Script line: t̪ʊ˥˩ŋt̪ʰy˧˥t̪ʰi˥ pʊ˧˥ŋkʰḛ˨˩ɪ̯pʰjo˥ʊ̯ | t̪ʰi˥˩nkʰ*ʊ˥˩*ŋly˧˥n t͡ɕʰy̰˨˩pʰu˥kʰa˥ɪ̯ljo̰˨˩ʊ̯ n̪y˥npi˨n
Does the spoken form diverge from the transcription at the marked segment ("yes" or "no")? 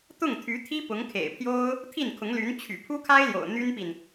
yes